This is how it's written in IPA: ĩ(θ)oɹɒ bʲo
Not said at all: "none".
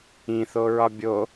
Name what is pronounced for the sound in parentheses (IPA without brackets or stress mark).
θ